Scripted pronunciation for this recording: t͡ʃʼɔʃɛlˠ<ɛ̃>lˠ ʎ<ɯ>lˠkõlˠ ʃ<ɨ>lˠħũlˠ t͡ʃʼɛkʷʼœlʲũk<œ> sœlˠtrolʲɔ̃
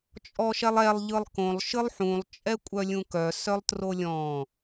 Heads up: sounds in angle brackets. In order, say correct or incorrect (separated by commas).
incorrect, correct, correct, correct